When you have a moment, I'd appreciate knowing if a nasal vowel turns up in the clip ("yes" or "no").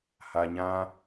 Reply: yes